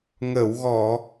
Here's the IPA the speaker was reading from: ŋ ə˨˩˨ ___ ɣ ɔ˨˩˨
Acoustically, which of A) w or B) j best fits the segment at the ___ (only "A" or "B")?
A